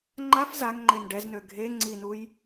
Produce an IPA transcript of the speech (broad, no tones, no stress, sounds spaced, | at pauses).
ŋ͡ǃ a f z a ŋ ŋ͡ǃ e n ɖ ɛ z n ø ɡʱ e ŋ͡ǀ i n u j